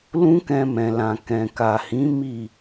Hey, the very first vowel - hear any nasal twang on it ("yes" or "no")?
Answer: yes